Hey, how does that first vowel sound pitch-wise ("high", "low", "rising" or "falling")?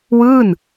falling